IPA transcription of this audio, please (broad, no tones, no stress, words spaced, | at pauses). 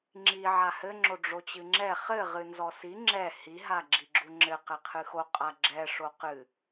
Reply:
ŋ͡ǁi ʕahɘŋ͡ǁo ɖ͡ʐot͡ɕɨŋ͡ǁɛ χɘ ʁɨnzɔsi ŋ͡ǁɛ hiɦa ɡ͡ǁiɡ͡ǁuŋ͡ǁɘ qɛqʰɨxo qʼaɡ͡ǁɛ ʂoqɨ